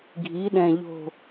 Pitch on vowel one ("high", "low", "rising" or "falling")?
rising